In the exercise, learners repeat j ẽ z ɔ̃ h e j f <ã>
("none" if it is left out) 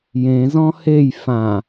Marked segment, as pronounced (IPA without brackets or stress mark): ã